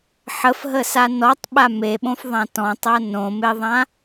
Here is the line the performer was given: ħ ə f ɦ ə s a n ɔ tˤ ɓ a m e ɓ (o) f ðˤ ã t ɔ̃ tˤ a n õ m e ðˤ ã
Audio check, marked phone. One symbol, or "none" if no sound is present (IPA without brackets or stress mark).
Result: õ